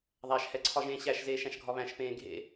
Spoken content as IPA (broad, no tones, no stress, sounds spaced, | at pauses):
ðˤ æ ʃ h ɛ ǀʰ ɒ ʒ ẽː ɕ æ ʃ z eː ʃ æ̃ ʃ ɡʱ ɒ β æ̃ ʃ p ẽː ɡʱ ḛ